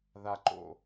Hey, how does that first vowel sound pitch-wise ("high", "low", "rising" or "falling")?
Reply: low